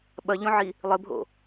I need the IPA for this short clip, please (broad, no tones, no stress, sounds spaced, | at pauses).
ɓ ɐ ʎ õ ʕ i | lˠ ɘ bʱ o̰